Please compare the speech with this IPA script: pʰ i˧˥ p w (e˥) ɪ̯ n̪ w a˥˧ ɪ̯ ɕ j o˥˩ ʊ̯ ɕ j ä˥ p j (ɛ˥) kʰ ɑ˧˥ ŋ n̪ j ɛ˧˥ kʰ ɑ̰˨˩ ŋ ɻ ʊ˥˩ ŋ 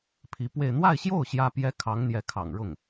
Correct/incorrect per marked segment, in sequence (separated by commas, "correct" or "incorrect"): incorrect, correct